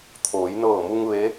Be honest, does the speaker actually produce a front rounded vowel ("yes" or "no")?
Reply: no